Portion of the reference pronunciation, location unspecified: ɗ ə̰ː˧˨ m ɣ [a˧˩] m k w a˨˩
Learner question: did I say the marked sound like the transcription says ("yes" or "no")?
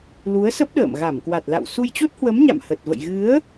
yes